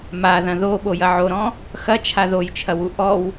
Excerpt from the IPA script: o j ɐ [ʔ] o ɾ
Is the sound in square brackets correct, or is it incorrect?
incorrect